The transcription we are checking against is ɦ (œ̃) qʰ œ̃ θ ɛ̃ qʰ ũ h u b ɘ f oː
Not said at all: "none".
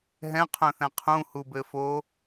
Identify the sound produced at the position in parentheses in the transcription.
ɛ̃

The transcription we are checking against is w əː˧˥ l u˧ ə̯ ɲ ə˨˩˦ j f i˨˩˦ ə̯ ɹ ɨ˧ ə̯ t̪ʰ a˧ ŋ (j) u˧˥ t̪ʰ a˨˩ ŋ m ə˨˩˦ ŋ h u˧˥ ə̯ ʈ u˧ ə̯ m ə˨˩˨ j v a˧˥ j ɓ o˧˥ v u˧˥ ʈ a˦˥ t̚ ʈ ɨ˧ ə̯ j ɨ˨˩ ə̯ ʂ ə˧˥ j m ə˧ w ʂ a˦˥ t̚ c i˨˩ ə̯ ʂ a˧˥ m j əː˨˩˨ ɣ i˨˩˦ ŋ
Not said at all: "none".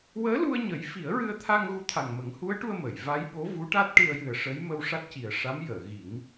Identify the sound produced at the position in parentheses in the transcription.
ɣ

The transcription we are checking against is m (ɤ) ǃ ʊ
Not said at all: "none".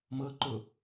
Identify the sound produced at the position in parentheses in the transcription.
ɤ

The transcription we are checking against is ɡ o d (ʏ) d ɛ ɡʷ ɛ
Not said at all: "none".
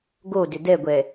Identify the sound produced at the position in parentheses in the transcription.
ʏ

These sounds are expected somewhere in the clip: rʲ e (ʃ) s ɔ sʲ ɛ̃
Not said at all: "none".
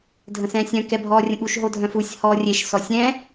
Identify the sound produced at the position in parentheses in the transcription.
ʃ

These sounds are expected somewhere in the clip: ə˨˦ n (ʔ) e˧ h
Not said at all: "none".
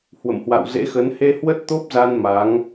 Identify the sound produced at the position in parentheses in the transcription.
h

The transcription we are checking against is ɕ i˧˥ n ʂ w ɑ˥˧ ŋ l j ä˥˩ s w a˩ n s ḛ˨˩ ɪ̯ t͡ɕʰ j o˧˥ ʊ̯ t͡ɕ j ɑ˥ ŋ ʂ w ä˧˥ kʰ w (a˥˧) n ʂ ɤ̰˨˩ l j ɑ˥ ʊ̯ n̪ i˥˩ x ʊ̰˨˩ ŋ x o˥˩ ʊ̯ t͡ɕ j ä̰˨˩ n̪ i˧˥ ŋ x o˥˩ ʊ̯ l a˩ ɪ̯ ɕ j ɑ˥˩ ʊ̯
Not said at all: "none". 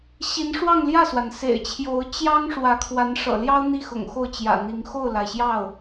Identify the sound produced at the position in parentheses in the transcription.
a˧˥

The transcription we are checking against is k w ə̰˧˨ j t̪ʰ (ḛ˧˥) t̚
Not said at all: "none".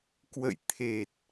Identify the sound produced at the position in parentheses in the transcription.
e˨˩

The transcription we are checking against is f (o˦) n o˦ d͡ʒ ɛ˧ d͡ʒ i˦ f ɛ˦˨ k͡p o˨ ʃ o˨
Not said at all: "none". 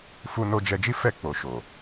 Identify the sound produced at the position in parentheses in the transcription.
u˦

